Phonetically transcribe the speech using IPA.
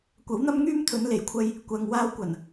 kʷ ɐ˨˥ w n̪ ɐ˥ m ŋ yː˥ m t̪ʰ ɵ˨˧ n l e˨˩ j kʷʰ ɐ˧ j | kʷ ɐ˨ ŋ w aː˧ w kʷ ɐ˨˩ n

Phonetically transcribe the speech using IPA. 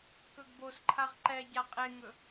k ɵ ɡ b o s ǃʰ a ʁ ǃ ɛ ɟ a qʼ e ŋ ɵ

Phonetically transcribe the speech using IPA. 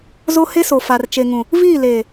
z o˦ h e˦ s o˨ f a˨ r t͡ʃ e˨ ŋ ũ˨ | v iː˦˨ l eː˨

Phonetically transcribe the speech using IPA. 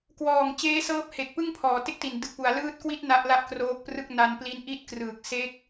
k w ɔː˨˩ ŋ t͡ɕ eː˦˥ s ɤː˦˥ p̚ h e˨˩ k̚ p ɯ˥˩ ŋ pʰ ɔː˩˦ t e˥˩ k̚ t i˨˩ n d ɯ˨˩ k̚ p u˩˦ a̯ l ɯː˦˥ t̚ k w i˦˥ t̚ n a˦˥ ʔ l a˥˩ ʔ k r oː˦˥ k̚ p r ɯ˥˩ k̚ n a˧ n p l i˦˥ n ʔ i˦˥ t̚ k r ɯː˨˩ k̚ s e˦˥ k̚

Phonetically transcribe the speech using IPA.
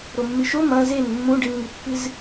ɾ o mː ɨ ʃ o m ɐ̃ z e n mː ũ ɖ ɨ n ŋ ɨ pː ɨ z

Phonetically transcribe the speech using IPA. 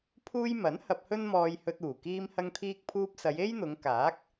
pʰ uː˧ j m ɐ˨˥ n h ɐ˧ p̚ h ɵ˥ n m ɔː˧ j h ɵ˧ t̚ uː˨˩ k iː˧ m h ɐ˧ ŋ t̪ʰ iː˧ k̚ pʰ uː˧ p̚ s ɐ˨˧ j e˥ j n̪ ʊ˨˧ ŋ k aː˨˥ k̚

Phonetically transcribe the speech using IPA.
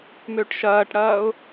m ø ʈ ʃ ɐː ʈ ɽ ɐː ʊ̯

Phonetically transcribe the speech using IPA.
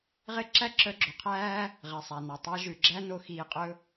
ʁ e˦ ǁ æ˦ ǁ œ˧ ɡ͡ǁ o˨ qʰ æː˦ | ʁ ɛ˨ sˤ æ˨ n ɑ˨ tˤ æ˧ ʒ ʉ˨ ɡ͡ǁ æ˦ n o˧ x iː˧ qʼ ɵ˦

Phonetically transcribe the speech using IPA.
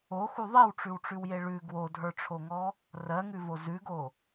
o x u ðˤ i w ʈ͡ʂ ʉ w ʈ͡ʂ ʉ w j e ɭ ʉ ɡ w o dʱ ə˞ ʈ͡ʂʰ o ŋ ɔ | r ɜ ŋ ʉ v o z ʉ ɡ o

